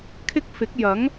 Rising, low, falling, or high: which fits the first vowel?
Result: high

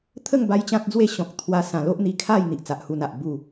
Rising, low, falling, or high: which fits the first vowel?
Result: falling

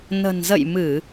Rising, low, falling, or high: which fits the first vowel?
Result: low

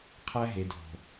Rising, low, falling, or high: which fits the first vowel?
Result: high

